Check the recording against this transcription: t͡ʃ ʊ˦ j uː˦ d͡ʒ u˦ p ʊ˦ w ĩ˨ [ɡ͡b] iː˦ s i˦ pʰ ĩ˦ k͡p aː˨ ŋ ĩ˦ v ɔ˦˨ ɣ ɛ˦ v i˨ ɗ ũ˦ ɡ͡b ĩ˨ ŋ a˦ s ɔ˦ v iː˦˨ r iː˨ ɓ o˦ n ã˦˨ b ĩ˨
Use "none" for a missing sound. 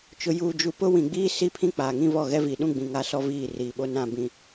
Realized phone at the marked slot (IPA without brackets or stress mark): ɡ͡b